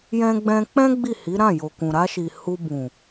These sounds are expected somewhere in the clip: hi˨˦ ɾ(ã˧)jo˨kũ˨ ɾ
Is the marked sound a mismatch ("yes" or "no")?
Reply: yes